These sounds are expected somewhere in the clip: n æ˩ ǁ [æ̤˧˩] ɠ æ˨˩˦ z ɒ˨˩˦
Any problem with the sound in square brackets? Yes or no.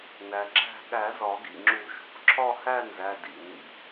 no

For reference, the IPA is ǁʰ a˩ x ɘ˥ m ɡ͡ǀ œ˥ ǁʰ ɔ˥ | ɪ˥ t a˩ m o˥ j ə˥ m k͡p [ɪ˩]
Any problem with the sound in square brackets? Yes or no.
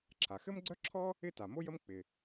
no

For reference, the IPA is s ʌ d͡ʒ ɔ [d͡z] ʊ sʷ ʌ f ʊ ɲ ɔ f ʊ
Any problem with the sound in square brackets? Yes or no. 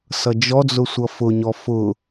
no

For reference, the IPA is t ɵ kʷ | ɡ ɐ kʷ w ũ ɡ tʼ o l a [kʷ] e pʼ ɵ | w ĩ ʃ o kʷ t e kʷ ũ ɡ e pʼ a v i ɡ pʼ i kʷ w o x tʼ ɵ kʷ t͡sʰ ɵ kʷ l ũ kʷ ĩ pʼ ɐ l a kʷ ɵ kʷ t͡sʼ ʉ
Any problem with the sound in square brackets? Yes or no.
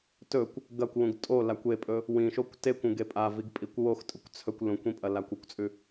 no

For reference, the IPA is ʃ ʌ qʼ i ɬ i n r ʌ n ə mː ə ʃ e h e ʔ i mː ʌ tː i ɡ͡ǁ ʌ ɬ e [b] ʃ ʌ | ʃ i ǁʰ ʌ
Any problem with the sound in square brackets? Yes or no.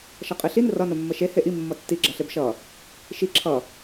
no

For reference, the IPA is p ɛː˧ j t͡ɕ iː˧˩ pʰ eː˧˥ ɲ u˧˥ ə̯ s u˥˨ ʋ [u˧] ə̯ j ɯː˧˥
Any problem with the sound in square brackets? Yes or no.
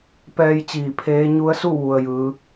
no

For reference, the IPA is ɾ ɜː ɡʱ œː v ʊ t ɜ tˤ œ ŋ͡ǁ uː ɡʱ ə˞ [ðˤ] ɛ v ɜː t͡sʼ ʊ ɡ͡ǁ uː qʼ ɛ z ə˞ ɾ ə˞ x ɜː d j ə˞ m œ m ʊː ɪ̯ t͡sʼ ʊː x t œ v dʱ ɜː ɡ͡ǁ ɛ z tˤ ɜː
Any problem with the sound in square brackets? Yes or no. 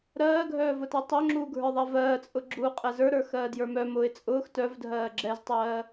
no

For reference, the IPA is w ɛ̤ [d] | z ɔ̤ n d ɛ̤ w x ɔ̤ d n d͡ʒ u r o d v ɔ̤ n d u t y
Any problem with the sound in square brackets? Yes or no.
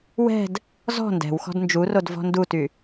no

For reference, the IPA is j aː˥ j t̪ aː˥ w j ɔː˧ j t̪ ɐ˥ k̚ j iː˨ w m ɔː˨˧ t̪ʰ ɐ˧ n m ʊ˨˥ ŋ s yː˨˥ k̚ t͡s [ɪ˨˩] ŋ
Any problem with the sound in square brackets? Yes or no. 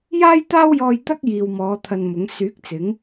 yes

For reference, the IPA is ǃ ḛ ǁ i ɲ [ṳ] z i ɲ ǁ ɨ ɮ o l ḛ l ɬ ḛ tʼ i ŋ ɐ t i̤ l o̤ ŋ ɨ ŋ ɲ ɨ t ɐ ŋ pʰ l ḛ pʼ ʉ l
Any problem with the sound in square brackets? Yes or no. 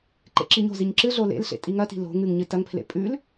yes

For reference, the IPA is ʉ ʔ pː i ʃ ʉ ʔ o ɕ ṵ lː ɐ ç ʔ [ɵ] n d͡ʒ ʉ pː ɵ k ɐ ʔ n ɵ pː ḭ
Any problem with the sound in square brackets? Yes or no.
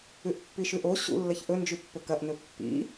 no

